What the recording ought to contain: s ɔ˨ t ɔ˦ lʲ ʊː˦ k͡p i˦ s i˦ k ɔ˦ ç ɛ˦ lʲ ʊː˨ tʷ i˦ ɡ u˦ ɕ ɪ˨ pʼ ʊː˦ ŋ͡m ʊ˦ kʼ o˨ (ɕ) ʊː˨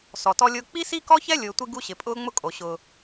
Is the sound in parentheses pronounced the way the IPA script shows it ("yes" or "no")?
yes